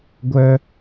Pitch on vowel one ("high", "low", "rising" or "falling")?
high